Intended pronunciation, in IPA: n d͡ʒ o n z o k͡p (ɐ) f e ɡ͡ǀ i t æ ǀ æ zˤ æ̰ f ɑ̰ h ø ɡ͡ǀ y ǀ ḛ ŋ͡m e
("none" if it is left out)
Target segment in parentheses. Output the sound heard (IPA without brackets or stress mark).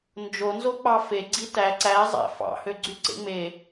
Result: ɑ